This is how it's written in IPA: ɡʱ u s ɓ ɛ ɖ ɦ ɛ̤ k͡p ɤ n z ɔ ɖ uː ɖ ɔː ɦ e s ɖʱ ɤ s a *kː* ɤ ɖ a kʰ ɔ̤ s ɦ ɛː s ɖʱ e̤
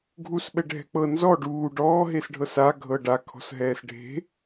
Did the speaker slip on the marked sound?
yes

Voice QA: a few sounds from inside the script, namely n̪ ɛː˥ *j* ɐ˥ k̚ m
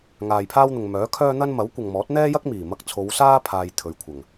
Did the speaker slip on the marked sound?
no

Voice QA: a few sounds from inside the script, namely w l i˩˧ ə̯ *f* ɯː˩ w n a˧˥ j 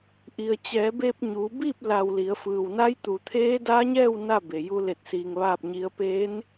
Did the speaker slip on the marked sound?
no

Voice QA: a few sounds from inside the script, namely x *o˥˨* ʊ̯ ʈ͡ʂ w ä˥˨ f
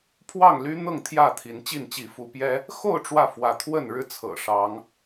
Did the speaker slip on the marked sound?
no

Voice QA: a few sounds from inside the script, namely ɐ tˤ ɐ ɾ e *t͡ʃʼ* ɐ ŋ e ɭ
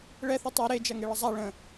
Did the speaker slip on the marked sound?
yes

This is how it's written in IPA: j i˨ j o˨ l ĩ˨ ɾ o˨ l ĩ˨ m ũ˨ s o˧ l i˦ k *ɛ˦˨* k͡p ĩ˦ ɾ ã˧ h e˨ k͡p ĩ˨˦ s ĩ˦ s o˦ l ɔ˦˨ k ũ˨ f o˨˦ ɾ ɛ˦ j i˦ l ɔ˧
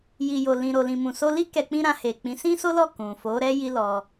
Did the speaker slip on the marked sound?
yes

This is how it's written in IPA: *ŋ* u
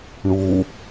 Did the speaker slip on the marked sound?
yes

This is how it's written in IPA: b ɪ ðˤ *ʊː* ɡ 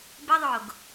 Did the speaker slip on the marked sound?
no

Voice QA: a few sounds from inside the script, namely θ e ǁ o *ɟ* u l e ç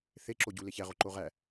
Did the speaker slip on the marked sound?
no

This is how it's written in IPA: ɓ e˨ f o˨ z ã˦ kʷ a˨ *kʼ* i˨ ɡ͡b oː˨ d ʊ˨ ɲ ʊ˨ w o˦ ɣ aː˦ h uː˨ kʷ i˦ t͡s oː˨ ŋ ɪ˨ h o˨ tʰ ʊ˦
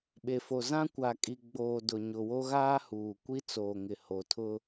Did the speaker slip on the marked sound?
no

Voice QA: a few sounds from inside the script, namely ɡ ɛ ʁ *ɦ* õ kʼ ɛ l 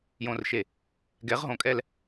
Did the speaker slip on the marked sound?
no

